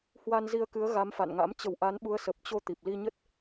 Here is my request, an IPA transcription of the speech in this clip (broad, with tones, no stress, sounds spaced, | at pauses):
h w a˧ n z i˧ ə̯ k ɨ˨˦ ə̯ ɣ a˨˦ m f a̰˧˨ n ŋ a̰˧˥ m t͡ɕ ə˨˩ w ʔ a˨˦ n ɓ u˨˦ ə̯ s ə˨˩ p̚ t͡ɕ o˧ t̪ i˨˩ p̚ l i˧ ɲ ə˦˥ t̚